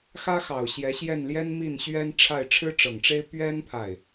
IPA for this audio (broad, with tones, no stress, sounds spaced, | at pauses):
x ä˥ x ɑ˨˩ ʊ̯ ɕ j ɛ˧˥ ɕ j ɛ˥˩ n l j ɛ˥ n m i˥˩ n ɕ ɥ ɛ˥ n ʈ͡ʂʰ a˥˩ ɪ̯ ʈ͡ʂʰ ɻ̩˥ ʈ͡ʂ ɤ˨˩ ŋ ʈ͡ʂ e˥ ɪ̯ p ɥ ɛ˥ n pʰ a˥˩ ɪ̯